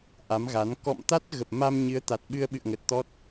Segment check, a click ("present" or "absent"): absent